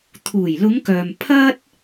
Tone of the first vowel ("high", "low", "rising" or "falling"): low